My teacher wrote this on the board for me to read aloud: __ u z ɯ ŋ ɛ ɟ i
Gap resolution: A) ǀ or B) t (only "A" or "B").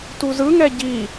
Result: B